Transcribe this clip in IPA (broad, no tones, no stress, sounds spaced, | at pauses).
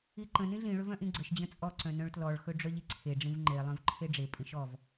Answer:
i ǃ ə̃ n ĩ ɮ ĩ ɭ ɵ v œ̃ ʔ ĩ ɡ͡ǀ ə ʃ d͡ʑ ə̃ t͡sʼ ɔ ǀ œ̃ n œ̃ ɭ t l ɔ ɭ x ɵ ɖ͡ʐ œ ʎ i ǀʰ e ɖ͡ʐ ĩ v ŋ͡ǃ e lˠ œ̃ v ǃʰ e ɖ͡ʐ e pʼ ĩ ʃ ɔ v